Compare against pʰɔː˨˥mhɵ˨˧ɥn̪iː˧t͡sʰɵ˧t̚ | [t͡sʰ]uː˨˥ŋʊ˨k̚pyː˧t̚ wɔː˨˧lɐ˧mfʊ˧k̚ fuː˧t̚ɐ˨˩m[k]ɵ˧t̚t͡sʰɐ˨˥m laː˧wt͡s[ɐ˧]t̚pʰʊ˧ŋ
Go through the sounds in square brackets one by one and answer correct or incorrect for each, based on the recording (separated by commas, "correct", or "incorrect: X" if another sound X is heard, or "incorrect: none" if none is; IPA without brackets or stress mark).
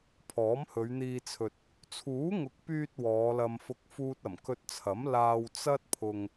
correct, correct, incorrect: ɐ˥